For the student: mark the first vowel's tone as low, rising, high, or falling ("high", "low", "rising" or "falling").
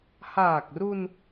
low